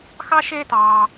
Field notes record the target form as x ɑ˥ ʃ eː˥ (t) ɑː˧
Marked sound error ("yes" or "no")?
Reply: no